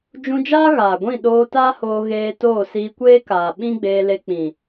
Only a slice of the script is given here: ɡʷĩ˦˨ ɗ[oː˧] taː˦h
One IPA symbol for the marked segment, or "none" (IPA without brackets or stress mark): oː˧